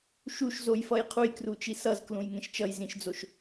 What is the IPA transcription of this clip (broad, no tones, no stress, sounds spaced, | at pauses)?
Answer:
ʃ u ʃ z o j f ʌ j qʰ u j k r u t͡ʃ i s ʌ z k l ũ j ŋ ẽ ʃ t͡ʃ ʌ j z ĩ ʃ d͡z o ʃ